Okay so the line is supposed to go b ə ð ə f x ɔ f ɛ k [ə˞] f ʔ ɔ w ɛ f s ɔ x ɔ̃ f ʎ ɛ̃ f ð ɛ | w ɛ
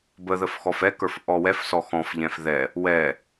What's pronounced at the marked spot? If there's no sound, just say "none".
ə˞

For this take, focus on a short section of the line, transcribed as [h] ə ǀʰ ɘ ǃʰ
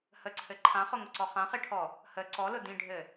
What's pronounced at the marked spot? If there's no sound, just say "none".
h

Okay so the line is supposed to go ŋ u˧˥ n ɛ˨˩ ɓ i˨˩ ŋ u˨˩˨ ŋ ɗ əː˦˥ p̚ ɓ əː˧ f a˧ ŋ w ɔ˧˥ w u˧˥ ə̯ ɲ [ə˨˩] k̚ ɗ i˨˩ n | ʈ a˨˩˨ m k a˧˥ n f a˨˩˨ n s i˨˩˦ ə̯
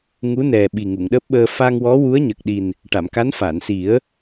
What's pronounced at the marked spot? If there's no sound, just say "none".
ə˨˩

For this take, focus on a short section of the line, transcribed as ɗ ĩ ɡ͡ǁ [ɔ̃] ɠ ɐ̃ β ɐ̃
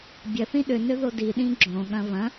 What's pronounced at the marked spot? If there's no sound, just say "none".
õ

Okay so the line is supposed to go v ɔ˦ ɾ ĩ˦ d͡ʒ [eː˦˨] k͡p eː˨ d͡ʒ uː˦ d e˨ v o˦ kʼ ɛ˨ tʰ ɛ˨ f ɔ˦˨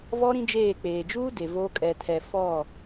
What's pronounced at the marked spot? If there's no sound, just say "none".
eː˦˨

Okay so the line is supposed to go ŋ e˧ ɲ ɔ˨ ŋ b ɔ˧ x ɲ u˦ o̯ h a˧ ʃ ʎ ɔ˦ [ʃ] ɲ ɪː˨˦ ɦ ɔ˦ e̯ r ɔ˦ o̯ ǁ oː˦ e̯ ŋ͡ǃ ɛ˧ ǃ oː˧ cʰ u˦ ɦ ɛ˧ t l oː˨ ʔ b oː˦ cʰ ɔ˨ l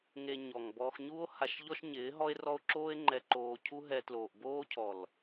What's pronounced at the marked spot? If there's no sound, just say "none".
ʃ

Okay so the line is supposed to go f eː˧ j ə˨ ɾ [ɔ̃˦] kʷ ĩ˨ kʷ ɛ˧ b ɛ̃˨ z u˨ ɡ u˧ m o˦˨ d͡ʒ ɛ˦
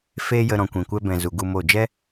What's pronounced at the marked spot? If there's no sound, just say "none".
ɔ̃˨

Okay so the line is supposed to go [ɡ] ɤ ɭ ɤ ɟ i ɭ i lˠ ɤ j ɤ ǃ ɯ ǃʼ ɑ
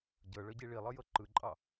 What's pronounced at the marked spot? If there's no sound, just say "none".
ɟ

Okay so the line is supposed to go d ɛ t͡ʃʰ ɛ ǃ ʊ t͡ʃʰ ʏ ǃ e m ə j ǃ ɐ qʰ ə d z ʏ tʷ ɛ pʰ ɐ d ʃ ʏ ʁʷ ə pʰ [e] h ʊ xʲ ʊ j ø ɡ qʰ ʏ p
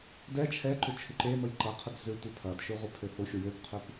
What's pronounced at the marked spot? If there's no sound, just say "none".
ø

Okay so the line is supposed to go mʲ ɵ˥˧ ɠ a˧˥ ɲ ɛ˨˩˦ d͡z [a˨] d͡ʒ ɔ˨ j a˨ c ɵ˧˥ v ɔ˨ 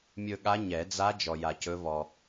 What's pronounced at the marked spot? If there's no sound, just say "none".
a˧˥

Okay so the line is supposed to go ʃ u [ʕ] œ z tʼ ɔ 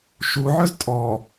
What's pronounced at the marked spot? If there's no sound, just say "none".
ʕ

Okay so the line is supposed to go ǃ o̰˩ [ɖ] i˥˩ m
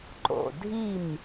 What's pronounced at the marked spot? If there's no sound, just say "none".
dʱ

